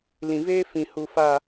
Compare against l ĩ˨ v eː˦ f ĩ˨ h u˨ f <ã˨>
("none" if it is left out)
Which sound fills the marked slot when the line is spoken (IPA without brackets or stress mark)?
a˨